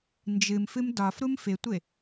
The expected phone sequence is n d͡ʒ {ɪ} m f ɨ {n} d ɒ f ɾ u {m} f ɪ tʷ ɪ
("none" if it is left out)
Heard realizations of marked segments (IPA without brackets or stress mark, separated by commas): ɨ, m, m